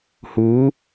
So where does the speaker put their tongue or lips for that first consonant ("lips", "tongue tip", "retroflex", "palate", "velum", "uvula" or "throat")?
throat